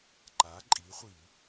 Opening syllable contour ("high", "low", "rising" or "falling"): rising